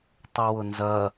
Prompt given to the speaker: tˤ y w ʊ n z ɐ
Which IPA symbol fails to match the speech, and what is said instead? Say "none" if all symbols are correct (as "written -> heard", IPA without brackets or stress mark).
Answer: none